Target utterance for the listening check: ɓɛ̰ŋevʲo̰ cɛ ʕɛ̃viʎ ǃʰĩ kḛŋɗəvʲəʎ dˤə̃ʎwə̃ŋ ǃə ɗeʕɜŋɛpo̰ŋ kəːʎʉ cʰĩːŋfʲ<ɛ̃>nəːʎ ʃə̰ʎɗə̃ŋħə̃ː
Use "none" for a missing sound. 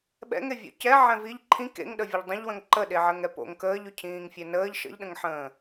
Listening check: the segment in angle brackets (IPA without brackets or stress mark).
ɛ